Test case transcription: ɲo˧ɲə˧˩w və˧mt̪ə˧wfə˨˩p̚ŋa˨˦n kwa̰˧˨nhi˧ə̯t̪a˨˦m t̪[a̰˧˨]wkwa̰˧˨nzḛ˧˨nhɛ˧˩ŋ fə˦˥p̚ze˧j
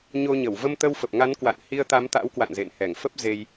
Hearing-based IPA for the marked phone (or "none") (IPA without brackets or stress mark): a̰˧˥